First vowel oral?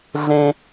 no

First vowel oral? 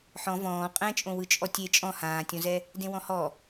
no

